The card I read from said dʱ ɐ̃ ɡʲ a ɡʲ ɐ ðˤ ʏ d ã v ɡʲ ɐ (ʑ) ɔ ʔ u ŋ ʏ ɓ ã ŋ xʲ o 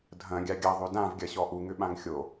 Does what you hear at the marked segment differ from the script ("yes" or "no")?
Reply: yes